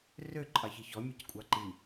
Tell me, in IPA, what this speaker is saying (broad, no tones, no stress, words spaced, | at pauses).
rø ǃʼɑçiçɔ mʲeckʷʼɑǃi